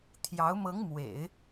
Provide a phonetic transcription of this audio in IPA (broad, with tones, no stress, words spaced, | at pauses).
t̪ʰjɑ˧˥ʊ̯ mɤ˧˥ŋmwḛ˨˩˦ɪ̯